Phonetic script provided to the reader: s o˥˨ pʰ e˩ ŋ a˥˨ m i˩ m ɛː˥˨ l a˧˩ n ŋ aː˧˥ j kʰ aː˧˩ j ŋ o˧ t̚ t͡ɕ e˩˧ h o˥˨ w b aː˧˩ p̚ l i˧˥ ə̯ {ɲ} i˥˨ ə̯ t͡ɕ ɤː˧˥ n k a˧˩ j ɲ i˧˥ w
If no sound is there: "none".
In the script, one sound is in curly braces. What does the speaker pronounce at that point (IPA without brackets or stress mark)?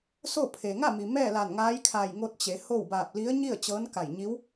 ɲ